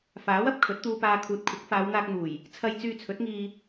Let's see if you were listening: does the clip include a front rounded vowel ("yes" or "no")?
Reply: yes